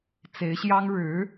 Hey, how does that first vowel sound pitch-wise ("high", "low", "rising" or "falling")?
rising